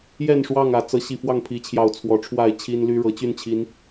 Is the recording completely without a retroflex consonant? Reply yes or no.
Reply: no